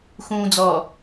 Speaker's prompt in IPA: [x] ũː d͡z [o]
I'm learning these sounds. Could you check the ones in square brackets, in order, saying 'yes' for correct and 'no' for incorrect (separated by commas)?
yes, no